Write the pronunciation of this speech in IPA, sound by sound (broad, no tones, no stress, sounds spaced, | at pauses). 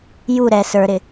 j u ɾ ɛ s ə˞ ɾ ɪ